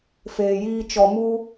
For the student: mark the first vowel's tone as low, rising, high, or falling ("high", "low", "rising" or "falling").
low